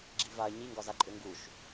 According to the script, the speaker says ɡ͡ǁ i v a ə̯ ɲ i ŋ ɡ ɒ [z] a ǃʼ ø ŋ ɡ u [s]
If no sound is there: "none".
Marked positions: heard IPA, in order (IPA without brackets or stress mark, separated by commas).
z, ʃ